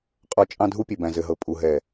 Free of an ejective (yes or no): no